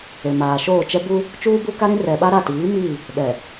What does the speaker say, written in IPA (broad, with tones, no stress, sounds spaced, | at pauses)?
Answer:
e˨ m aː˨ ʃ oː˦˨ t͡ʃ ɛ˦ b u˦ | t͡ʃ uː˦ b u˦ k a˦ ɾ ĩ˦ r ɛ˨ ɓ a˦ ɾ a˦˨ t iː˨˦ m iː˦˨ | ɓ ɛ˨